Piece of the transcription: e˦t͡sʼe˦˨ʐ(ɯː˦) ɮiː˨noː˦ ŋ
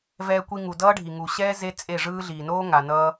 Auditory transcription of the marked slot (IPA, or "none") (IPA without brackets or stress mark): ɯː˦